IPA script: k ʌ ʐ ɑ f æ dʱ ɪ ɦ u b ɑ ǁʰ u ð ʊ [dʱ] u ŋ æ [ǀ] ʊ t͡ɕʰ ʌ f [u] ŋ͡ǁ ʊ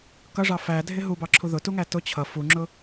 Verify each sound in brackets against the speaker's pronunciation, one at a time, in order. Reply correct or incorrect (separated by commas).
incorrect, incorrect, correct